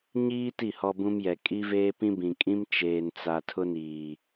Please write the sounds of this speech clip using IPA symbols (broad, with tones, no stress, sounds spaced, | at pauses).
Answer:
ɲ iː˦ t i˦˨ h ɔ˦ b ũ˦ m j ɛ˨ kʼ i˦ v eː˦ p ĩ˦ b ĩ˨ kʼ ĩ˦ m t͡ʃ eː˨ n t͡s a˨ tʰ ʊ˦ n iː˨